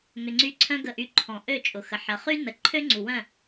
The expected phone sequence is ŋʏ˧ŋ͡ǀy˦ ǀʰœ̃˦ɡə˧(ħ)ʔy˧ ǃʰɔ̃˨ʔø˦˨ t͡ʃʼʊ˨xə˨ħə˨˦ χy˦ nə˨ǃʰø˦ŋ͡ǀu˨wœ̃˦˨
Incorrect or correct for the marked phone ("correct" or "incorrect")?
incorrect